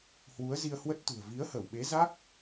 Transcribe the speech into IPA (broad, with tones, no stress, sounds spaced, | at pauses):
h w u˨˦ ə̯ z i˧ ə̯ h w ə˦˥ t̚ t̪ ṳ˨˩ ə̯ v i˨˦ ə̯ h ə˧˩ w ɓ e˨˦ z a˦˥ k̚